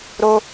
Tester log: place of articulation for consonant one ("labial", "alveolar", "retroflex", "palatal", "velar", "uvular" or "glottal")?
alveolar